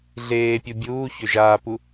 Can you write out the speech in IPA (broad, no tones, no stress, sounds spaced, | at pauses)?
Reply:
ɮ eː pʲ u bʲ uː ç ø ʒ aː p u